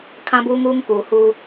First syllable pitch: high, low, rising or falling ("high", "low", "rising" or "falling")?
high